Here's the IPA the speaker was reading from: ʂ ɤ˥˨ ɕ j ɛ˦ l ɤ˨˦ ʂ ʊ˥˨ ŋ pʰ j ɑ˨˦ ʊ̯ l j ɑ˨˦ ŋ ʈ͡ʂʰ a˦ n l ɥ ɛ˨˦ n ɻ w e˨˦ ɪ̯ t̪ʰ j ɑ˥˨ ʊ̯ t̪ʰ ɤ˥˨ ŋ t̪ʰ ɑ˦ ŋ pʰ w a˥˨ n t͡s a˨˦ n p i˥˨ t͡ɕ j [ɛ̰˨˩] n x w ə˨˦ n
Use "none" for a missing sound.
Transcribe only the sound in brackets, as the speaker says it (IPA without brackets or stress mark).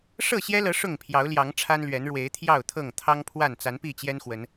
ɛ˦